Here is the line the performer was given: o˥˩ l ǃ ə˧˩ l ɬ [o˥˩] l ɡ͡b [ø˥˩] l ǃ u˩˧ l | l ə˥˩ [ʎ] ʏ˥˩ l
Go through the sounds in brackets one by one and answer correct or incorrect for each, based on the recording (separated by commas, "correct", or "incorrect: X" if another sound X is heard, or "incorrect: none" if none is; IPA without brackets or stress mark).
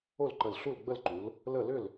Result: incorrect: u˥˩, incorrect: ə˥˩, incorrect: l